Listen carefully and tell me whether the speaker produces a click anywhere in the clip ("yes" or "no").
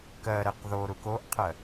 no